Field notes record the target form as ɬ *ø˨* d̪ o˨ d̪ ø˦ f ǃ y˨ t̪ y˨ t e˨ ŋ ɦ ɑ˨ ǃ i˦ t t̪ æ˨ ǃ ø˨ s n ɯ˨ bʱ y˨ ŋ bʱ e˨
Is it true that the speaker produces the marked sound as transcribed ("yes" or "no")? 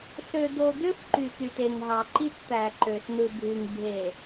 yes